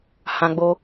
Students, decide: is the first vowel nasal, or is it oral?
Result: nasal